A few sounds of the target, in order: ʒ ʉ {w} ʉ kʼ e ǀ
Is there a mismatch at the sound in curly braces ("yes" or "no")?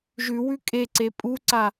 no